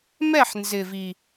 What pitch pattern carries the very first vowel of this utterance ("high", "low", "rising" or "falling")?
falling